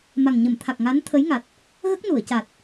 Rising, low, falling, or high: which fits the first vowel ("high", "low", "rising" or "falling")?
low